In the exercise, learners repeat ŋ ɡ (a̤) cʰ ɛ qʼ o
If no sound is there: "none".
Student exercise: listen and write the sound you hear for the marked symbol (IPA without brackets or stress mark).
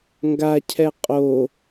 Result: a